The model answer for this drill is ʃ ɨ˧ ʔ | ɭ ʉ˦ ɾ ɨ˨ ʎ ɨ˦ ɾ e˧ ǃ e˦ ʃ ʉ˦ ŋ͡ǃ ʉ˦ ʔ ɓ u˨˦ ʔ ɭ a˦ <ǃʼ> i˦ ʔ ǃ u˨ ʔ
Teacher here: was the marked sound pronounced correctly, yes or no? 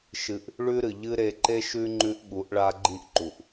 no